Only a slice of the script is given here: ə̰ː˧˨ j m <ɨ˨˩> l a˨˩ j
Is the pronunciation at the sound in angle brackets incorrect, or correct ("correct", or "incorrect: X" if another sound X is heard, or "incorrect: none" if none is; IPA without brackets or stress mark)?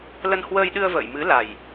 incorrect: ɨ˨˦